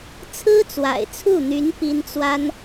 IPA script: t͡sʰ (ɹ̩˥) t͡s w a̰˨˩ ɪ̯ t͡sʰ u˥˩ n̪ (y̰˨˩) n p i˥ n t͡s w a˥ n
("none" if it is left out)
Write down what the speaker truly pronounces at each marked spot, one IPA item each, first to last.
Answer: ɹ̩˥, y˧˥

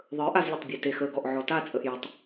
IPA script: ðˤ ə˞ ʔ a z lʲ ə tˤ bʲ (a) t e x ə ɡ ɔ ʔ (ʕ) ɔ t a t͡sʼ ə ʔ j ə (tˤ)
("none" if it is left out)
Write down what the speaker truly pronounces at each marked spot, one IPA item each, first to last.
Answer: a, ʕ, tˤ

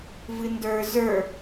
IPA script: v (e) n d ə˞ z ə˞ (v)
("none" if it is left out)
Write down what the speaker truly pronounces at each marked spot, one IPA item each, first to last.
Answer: ɨ, none

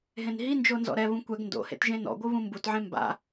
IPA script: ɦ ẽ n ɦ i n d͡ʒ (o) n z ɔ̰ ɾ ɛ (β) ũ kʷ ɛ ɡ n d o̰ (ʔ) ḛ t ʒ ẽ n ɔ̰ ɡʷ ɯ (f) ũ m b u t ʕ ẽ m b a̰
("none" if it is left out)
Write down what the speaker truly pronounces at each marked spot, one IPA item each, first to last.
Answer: o, β, h, β

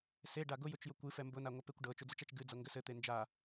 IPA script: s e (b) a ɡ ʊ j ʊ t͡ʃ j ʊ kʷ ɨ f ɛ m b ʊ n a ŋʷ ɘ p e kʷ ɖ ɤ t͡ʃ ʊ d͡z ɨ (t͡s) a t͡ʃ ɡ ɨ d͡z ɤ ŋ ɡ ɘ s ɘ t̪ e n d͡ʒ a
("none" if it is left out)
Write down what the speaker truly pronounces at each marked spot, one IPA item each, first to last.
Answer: ɖ, t͡ʃ

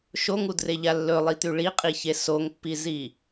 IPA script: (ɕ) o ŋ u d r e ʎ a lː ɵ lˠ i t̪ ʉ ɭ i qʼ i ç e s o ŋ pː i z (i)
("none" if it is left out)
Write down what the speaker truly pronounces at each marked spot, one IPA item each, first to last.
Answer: ʃ, i

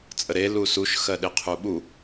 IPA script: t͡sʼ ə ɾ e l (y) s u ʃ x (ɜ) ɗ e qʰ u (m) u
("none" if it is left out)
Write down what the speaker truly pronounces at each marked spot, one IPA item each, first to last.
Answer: u, ɜ, ɓ

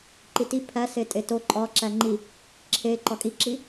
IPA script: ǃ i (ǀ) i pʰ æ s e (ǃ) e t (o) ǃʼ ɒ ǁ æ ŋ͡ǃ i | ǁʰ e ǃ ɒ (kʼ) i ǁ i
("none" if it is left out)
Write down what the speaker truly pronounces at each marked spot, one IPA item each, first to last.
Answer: t, tʼ, o, kʼ

